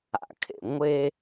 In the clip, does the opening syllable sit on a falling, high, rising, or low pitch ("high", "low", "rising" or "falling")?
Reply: low